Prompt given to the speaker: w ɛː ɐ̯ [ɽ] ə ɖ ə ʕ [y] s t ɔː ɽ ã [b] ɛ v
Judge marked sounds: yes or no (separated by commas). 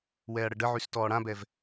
yes, yes, yes